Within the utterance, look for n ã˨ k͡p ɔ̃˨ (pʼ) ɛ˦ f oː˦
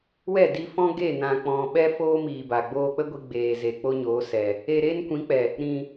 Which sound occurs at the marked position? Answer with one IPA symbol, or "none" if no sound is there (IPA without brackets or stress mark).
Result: ɓ